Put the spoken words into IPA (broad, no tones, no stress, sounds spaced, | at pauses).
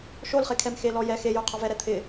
ʃ o l χ e kʰ ɛ m x e l ɔ j ɛ x e j o qʰ ɔ v ɛ ɾ ɛ t̪ʰ ɪ